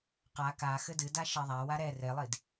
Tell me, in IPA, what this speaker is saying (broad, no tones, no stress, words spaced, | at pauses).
qa ka xɘdɨda ʃɛðˤawa ɾɛ relˠid